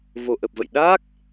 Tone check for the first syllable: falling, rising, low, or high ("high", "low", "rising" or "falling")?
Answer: low